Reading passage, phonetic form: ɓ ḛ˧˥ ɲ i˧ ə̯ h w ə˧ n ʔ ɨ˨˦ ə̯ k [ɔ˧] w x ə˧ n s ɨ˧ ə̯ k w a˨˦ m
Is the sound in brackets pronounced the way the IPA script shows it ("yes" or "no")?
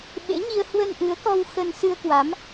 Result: yes